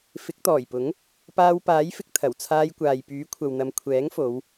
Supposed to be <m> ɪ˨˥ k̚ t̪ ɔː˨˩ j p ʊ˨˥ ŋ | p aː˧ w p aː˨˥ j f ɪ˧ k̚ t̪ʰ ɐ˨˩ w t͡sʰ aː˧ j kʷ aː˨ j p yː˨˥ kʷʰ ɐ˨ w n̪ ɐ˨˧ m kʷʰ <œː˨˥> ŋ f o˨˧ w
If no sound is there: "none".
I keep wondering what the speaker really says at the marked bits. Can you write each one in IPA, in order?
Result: f, ɛː˨˥

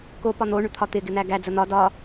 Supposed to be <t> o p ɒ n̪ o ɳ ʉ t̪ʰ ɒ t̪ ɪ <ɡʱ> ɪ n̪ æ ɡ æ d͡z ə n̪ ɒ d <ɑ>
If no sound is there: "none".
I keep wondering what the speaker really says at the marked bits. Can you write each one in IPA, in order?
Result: k, ɡ, ɒ

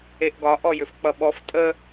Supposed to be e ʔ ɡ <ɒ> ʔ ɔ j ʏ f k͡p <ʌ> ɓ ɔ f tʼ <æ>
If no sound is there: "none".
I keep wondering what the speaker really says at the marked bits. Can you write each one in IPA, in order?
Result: ɒ, ʌ, ə

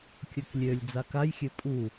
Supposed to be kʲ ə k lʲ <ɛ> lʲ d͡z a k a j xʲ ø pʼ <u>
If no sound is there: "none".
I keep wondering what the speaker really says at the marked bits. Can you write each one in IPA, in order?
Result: ø, u

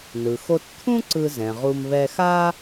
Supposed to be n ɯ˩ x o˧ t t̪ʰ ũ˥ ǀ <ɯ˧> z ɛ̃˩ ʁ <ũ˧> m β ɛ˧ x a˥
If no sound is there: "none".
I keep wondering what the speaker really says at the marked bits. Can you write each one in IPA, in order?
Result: ɯ˧, u˧

